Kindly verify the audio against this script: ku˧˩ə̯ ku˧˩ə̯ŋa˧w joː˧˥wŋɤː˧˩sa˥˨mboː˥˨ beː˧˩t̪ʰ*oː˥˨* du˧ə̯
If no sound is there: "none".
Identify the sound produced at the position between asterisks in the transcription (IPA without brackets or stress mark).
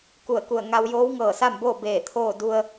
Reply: oː˥˨